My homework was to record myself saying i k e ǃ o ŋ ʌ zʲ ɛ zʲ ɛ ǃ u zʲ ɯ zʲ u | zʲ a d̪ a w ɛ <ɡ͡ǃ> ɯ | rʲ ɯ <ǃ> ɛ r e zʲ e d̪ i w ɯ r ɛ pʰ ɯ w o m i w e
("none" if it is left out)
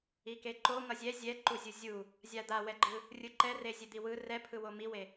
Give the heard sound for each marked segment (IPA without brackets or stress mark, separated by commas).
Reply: ɡ͡ǃ, ǃ